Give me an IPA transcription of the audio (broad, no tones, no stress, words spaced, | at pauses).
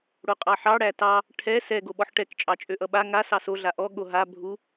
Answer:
ɽoqʼɑħɑ ɽætɑ | ʈʰɛ sɛ ɡoɓɔħʈɛk t͡ʃʼɑt͡ʃʼøʔʌɓa ŋa sɑso ɮaʔɔ ɠoɦa bʱu